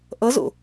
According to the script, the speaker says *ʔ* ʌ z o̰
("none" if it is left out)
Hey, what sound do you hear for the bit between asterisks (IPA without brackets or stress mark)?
ʔ